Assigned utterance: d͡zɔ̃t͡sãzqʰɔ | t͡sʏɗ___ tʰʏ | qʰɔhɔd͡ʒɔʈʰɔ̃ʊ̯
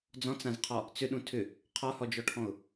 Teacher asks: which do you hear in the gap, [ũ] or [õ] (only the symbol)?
ũ